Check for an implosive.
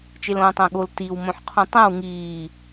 present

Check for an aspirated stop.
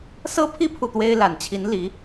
present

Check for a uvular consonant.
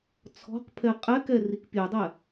present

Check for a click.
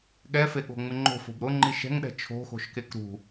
present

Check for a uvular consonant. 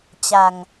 absent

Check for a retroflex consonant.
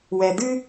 absent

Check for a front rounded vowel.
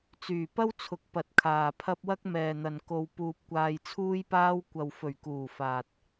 present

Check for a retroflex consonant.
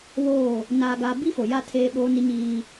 absent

